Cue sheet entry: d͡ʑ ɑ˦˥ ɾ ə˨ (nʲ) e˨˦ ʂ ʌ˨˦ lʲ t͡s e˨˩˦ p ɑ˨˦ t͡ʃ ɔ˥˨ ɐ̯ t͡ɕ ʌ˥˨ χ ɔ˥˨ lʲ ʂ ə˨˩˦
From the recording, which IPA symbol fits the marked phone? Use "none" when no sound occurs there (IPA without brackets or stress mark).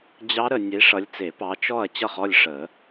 nʲ